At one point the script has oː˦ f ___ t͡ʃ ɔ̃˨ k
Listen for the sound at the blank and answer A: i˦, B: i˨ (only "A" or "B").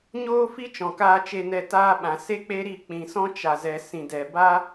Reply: A